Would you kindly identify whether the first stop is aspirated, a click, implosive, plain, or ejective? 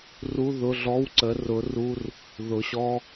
click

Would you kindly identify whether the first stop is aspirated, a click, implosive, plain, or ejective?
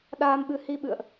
implosive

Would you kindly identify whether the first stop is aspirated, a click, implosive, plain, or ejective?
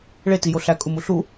plain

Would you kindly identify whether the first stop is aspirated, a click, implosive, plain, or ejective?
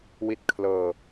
plain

